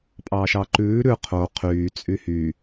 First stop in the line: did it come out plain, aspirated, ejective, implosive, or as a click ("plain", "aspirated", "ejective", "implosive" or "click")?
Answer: ejective